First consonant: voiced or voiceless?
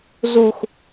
voiced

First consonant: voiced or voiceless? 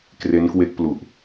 voiceless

